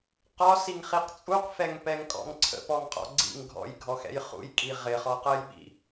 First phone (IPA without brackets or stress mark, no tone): q